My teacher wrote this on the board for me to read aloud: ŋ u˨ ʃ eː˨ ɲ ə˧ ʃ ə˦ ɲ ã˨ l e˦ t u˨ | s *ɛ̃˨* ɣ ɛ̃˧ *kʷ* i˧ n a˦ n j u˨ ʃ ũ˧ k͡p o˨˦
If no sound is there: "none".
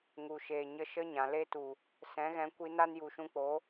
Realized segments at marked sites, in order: ɛ̃˨˦, kʷ

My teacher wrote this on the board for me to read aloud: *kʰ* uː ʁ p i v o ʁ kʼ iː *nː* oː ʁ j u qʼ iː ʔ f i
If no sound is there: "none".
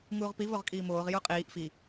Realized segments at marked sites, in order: ŋ, m

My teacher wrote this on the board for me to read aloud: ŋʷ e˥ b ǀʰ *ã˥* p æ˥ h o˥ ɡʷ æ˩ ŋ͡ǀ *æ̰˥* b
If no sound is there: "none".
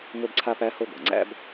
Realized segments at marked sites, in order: a˥, æ̰˥

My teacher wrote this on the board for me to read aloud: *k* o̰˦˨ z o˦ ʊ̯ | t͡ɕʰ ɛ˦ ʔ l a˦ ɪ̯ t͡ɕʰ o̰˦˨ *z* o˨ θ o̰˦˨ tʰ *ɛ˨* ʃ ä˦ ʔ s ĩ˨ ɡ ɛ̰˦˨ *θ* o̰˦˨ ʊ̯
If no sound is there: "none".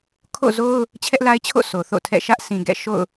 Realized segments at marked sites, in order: kʰ, s, ɛ̰˦˨, ʃ

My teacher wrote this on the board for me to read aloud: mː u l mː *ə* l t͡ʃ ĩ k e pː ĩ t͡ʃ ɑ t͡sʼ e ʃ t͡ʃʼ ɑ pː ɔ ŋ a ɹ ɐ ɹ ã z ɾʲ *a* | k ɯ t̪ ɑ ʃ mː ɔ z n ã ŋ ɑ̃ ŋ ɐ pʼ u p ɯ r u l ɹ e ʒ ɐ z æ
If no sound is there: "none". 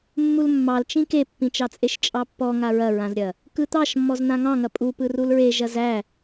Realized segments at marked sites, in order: ɑ, ɐ

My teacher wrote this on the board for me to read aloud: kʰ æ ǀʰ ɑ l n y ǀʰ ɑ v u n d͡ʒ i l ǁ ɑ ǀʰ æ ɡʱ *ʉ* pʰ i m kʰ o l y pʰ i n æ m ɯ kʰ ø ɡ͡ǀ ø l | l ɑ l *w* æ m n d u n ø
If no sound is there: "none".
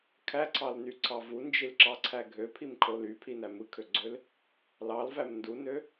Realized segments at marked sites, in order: ø, v

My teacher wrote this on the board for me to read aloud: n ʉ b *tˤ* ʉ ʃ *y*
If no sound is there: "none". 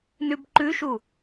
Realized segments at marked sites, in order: ǃ, u

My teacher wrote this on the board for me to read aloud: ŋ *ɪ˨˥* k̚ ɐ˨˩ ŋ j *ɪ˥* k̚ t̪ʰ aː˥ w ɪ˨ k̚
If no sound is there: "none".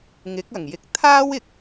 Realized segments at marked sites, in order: ɪ˨˥, ɪ˨

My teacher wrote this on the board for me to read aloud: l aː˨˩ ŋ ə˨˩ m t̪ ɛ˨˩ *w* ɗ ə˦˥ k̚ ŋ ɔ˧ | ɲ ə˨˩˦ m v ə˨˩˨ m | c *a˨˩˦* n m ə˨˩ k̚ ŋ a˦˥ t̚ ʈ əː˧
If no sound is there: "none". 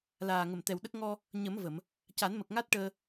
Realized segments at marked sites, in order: w, a˨˩˦

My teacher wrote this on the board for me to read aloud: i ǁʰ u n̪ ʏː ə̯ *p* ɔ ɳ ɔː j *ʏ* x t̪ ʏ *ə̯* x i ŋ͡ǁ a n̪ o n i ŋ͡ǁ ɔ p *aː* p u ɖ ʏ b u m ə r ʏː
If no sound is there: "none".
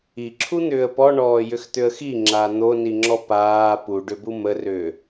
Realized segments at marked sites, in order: p, ʏ, ə̯, aː

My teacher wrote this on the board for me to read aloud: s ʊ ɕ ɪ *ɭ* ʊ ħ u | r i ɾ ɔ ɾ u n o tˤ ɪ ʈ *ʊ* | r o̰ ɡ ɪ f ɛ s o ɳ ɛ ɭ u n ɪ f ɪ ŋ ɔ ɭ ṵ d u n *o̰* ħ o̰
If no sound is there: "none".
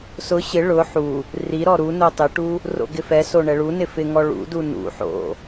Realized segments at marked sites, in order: ɭ, u, ṵ

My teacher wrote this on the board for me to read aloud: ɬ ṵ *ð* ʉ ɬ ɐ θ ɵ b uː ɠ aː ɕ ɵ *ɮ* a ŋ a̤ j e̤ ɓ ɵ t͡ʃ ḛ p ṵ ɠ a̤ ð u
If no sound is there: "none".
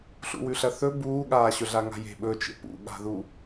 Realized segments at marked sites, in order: w, ɮ

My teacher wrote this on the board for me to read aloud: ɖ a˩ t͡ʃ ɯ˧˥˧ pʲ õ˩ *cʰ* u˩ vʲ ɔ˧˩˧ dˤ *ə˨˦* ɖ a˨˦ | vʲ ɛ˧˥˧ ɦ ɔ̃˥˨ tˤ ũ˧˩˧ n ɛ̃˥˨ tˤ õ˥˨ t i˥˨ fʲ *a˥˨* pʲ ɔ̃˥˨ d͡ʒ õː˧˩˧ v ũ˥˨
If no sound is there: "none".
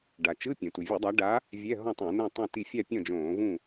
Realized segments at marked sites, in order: t, a˨˦, a˥˨

